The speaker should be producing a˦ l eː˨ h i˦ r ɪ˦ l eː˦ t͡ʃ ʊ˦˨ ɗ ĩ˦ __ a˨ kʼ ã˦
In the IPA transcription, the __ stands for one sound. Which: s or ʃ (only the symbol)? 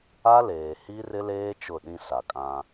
s